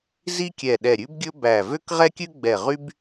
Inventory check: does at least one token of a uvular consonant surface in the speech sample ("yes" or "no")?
yes